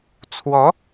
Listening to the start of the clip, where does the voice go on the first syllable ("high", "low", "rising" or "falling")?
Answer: rising